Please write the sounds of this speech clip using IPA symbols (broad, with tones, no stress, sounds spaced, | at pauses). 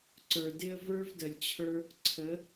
ǀ ə˞˨ d ɪ˦ ə̯ v ə˞˦ v d ə˨ lʲ t͡ɕʰ ə˞˦ | ǀʰ ə˨˦